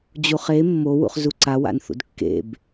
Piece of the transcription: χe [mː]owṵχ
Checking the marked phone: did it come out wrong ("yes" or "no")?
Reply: no